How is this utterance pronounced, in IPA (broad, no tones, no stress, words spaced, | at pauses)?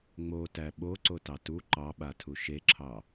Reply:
ŋ͡motæ ɓoǀotɑ tu ǃɑɓatʰu ʃeǁʰɑ